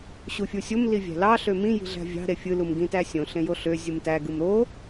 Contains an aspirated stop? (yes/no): no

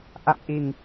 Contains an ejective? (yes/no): no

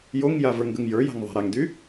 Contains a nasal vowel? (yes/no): no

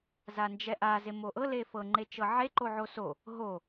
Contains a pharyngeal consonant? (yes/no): yes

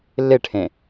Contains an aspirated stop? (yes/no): yes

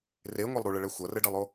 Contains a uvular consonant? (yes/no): no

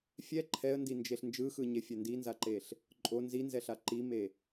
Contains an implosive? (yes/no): no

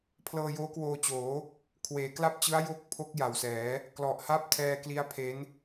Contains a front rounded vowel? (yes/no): no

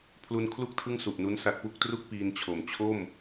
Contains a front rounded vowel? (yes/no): no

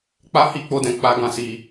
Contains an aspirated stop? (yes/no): no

